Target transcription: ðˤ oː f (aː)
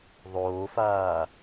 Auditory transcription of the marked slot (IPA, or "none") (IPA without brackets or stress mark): aː